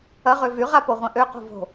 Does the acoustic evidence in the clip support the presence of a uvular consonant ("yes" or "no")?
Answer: yes